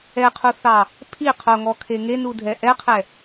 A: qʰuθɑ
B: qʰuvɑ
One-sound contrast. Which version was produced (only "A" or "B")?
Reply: A